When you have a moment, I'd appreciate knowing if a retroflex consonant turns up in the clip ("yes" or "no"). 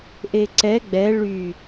yes